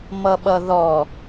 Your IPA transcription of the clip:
m ʌ ɓ ʌ ð ɔ

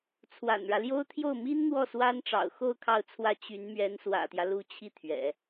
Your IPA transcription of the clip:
t͡sʰ w a̰˨˩ n ɻ ä˦ l j o˥ ʊ̯ t̪ʰ j o˥˩ ʊ̯ m i˥ n n̪ w ɔ˥˩ s w a˥ n ʈ͡ʂ ɑ̰˨˩ ʊ̯ x o˥˧ ʊ̯ kʰ ɑ˥˧ ʊ̯ t͡sʰ w ä˥˩ t͡ɕ y˧˥ n m ɥ ɛ˧˥ n s w ä̰˨˩ t̪ j ä˦ l u˧˥ t͡ɕʰ i˥˩ t̪ʰ ɥ ɛ̰˨˩˦

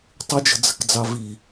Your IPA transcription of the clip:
tˤ ɪ d͡ʒ ə̤ d͡z ə̤ k d͡z ɑ v i

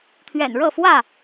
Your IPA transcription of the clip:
t̪ʰ ɥ ɛ̰˨˩ n ɻ ɤ˥˨ f w ä˥˨

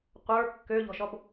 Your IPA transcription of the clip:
qʷ ə˞ kː ø ʎ ɔ̤ ʃ ɔ b

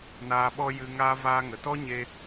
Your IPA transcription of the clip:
n aː˧ ɓ ɔ˦ j ɨ˧ ŋ aː˦ v aː˦ ŋ ə˨ t ɔ˦ ɲ e˧

